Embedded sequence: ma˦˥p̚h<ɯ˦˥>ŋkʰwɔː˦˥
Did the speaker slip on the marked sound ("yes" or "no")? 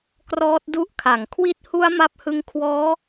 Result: no